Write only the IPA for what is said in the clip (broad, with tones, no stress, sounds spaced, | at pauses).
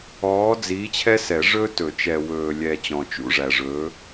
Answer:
ɔː˨˥ d͡z iː˨˥ t͡ɕʰ ɛ˥ s ɛ˨˩˦ ʐ ɵː˥ t ɵ˨˩˦ t͡ʃ ɛ˨ w ɵː˨ lʲ ɛ˨ t͡ɕ ɔ̃˨ t͡ʃ ṵ˧˥˧ ʐ æ˨ ʐ ɵː˨˥